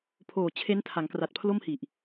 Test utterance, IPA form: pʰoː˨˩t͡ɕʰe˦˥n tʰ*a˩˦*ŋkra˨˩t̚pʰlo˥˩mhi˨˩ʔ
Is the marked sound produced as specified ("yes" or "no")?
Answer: yes